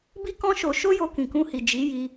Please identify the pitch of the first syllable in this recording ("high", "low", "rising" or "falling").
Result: high